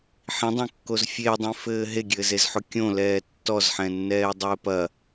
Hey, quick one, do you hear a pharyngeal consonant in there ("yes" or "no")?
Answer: yes